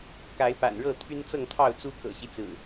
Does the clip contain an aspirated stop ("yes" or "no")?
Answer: yes